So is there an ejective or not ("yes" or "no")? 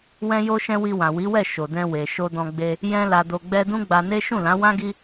no